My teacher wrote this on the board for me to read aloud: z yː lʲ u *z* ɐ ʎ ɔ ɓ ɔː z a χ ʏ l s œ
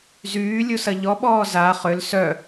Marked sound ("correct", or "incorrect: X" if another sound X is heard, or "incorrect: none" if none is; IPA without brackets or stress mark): incorrect: s